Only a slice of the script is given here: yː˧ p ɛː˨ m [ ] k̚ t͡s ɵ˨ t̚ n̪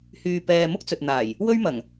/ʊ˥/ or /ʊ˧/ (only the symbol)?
ʊ˥